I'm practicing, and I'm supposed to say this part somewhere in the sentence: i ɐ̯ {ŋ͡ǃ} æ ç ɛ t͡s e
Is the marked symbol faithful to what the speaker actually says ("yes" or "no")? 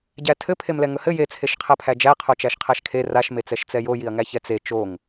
no